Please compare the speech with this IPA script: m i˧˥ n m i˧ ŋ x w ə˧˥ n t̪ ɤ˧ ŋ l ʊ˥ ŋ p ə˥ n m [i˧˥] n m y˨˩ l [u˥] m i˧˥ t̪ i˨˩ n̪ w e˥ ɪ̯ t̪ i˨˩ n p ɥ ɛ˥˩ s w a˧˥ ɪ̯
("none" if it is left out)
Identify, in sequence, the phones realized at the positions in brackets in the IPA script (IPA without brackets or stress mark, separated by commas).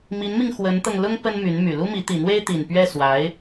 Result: y˧˥, u˥